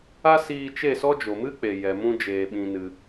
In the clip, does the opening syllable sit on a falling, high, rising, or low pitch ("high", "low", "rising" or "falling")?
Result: high